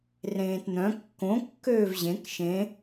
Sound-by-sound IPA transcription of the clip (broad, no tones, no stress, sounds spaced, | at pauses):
r ẽː t n̪ œ̃ kː õ kː øː v ʑ ẽ k ʃ ẽ